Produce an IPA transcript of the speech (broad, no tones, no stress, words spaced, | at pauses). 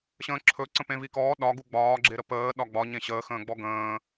ɕə̃ːǁʰɵǀə̃ pẽvikɔː ɗɒɡu ɡ͡bɒːɡ͡ǁe ɾəpəː ɗɒɡ͡bɒ ɲẽɕəːxə̃ːɡ͡bɔ ɡə̃ː